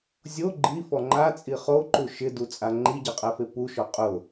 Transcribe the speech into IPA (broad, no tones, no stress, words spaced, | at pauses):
zʲo ɡ͡ǃifɔ ŋ͡ǃat͡sʼi χoǃu ʃɪdut͡sʼa ŋ͡ǃiɟɛqʼɛfe puʃɔ qʼʊ